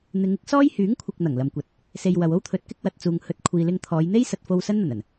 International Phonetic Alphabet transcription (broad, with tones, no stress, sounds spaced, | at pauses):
n̪ ɪ˨˧ ŋ ɪ˨˥ k̚ s ɔː˥ j h yː˨˥ ŋ kʷʰ ɪ˨ k̚ n̪ ɐ˨˩ ŋ l ɐ˨ m kʷ ɐ˨˥ t̚ | s e˧ j w ɐ˨ w o˥ w t̪ʰ ɵ˨˥ t̚ k ɪ˥ k̚ w ɐ˨ t̚ t͡s uː˨ ŋ h ɵ˨˥ t̚ kʷʰ iː˨ l ɪ˧ ŋ t̪ʰ ɔː˨˧ j n̪ e˥ j s ɐ˨ t̚ f o˧ w s ɐ˥ n n̪ ɐ˨˩ n ɐ˨˩ n